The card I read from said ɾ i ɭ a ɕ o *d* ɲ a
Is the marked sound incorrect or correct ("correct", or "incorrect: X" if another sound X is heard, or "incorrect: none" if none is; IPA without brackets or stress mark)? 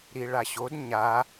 correct